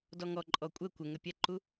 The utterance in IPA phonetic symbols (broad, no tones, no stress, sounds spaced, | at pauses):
d ɔ ŋ ɔ ǃʼ ɔ kʷʼ ə kʷ ə ŋ ə pʲ ɛ ǃ u